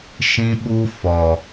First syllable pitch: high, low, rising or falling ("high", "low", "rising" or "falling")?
high